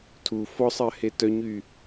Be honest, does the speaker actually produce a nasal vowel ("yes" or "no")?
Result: no